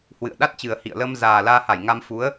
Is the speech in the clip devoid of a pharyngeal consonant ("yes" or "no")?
yes